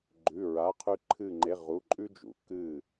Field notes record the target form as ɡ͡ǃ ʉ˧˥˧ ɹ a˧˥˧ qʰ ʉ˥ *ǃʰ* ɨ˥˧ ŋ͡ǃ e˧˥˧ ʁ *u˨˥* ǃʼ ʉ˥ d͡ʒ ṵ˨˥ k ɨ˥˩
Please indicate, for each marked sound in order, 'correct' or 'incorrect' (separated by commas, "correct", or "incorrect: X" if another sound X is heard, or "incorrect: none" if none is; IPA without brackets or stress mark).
correct, incorrect: u˧˥˧